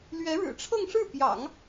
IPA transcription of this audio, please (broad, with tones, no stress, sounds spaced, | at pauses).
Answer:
l ɥ ɛ˧˥ ɻ ɻ̩˨˩ ʈ͡ʂʰ ɤ˥˧ ŋ ʂ ɻ̩˥˩ p j ɑ̰˨˩˦ ŋ